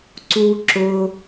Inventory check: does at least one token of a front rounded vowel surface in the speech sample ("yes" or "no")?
no